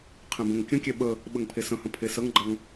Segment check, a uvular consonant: present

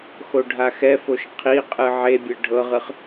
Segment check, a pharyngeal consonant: present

